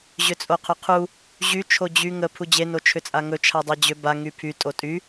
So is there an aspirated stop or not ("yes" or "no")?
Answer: yes